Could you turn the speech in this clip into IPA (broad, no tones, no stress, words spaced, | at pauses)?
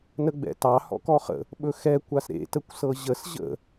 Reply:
nəɡ͡bɛ̰tɑ hɔ̰kɔχə̰ | ɓɵxɛ kʷasɾḛ təkʷsɤʑəs ʑə̰